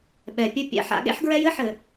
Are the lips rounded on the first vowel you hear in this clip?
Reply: no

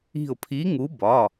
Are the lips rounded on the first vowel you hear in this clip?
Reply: no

